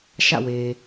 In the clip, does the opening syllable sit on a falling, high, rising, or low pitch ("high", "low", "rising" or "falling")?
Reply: falling